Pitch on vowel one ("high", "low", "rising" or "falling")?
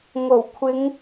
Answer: low